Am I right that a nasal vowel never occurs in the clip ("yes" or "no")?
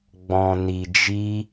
no